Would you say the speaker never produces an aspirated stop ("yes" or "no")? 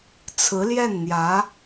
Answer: no